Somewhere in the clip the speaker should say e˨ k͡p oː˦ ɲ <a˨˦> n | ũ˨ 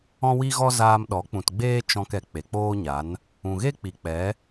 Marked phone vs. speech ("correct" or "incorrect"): correct